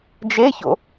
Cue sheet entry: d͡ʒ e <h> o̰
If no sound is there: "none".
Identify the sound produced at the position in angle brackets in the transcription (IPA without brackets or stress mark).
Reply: ç